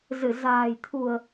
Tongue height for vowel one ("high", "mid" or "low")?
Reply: high